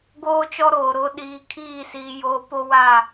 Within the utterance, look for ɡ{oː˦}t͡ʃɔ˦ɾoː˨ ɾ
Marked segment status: correct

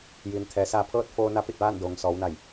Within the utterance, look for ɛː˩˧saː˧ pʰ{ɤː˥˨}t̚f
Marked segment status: correct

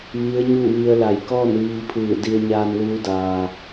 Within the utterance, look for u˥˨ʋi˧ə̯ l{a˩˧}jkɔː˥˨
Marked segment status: incorrect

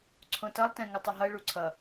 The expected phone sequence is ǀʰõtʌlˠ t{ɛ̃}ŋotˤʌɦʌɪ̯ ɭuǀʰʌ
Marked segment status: correct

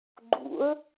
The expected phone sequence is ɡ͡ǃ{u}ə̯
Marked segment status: incorrect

